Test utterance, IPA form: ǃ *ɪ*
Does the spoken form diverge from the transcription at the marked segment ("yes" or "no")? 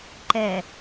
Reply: yes